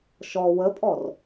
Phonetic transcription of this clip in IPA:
ʃɔ wəpʼɔr

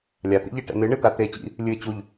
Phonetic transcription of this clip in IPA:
lʲat̪ḭʎe ʈɛ̰n̪ɨɳɨt̪a t̪e t͡ɕḭ | lʲɨɪ̯ t͡ɕuʎ

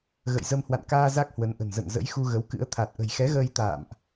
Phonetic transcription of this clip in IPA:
ɣə̰˧˨jzə˧m hwa̰˧˨nkaː˧ za˦˥k̚hwə˨˦nʔə̤˨˩n zə̰˧˨nzə̰˧˥j xu˧ ɣə˨˦wkɨ̰˧˥ə̯ t̪ʰa˨˩t̚ʔə̤˨˩jxɛ˨˦ɣəː˧j t̪a̰ː˧˨mʔ

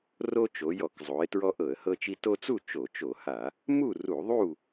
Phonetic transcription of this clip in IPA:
ro˦t͡ʃo˩˧jɔ˧˩˧kzˤo˩˧ɪ̯ tɹɔ˦ʔɤ˧˩˧ə̯hɤ˦t͡ʃi˦ to˦t͡su˥˨ t͡ʃo˧˩˧t͡ʃo˧˩˧ha˧˩˧ | mu˥˨ru˧˩˧ðˤu˥˨

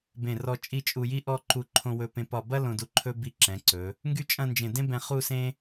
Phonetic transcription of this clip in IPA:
bẽ˧˩rɔ˧ t͡ʃʼi˥˧ t͡ʃʼu˧ji˥ʔɔ˥˧ ǃu˧ǃʰõ˧wɵ˧pẽ˧ pɒ˧˩bɐ˥ lõ˧ du˧ǃʰɵ˥ bi˧ǁɛ̃˩˧ǀɵ˩˧ | ŋɡy˥t͡ʃʼɐ̃˥˧nd͡ʒẽ˧˩ dẽ˥bɛ̃˧ χu˥˧sẽ˥

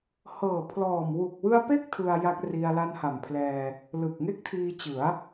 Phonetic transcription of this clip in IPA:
hɤː˨˩pʰlɔː˨˩m wu˨˩k̚wɯ˧a̯pe˦˥k̚ tʰɯ˧a̯ ja˦˥k̚ri˧a̯ la˧nha˨˩mpʰlɛː˧ | lɯ˨˩k̚ŋe˥˩k̚tʰiː˧t͡ɕɯ˩˦a̯

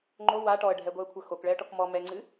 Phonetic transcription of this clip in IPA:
ŋ͡ǃo wa ʈɔə̯ɖʱɛɡʷɛə̯kʷʰɐ xokɭɛə̯ʈɔk mɔ mɛŋ͡ǀɨ

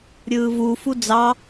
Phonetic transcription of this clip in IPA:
ɾʲɯːvufu d͡zɑ

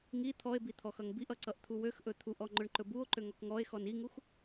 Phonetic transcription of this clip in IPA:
ŋi t̪ʰɔe̯bi t̪ʰɔxʌŋbiʔʌ ǀʌʔt̪ʰuwøxʔɵ t̪ʰuʔɔ ŋ͡ǃɵɳǃɵbuo̯ǃø ŋɔkŋɔe̯xɔn iŋux

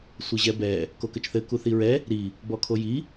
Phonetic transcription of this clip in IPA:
sʷɘʑɛbɛ | kokɘt͡ʃθɘ kuθiɹɛ | ɾi | bɔkʰoji

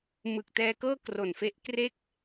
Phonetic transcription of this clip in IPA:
mɯ˨˩k̚tɛː˧kɤː˥˩ kro˨˩nfe˦˥ʔkre˥˩k̚

